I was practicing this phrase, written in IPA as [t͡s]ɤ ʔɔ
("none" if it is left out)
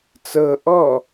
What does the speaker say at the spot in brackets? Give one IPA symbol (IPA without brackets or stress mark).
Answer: t͡s